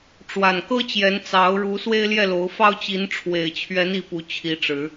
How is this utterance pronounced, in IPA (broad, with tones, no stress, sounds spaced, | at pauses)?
ʈ͡ʂ w a˨˩ n k ɤ˦ t͡ɕ j ɛ˨˦ n t͡s ɑ˨˦ ʊ̯ ɻ u˨˦ s w e˦ ɪ̯ l j ɛ˥˨ l o˨˦ ʊ̯ f ɑ˦ ʊ̯ t͡ɕ i˨˦ n ʈ͡ʂʰ w e˨˩ ɪ̯ t͡ɕʰ ɥ ɛ˨˦ n i˥˨ p u˨˦ t͡ɕʰ i˨˦ ʈ͡ʂ ɻ̩˨˦